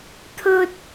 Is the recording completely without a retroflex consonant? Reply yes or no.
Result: yes